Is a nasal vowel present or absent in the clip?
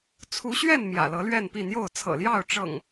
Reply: absent